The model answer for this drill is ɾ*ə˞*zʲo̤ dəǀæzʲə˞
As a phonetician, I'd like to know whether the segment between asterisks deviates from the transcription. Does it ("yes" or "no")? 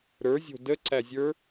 no